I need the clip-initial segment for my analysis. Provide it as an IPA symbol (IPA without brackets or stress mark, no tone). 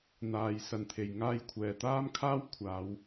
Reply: n̪